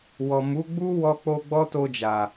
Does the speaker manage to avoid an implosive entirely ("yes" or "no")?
yes